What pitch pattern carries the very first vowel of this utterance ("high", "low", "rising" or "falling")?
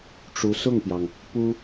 rising